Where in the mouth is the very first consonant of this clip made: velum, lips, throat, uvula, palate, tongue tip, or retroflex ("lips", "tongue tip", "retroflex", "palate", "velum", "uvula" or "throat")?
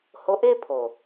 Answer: throat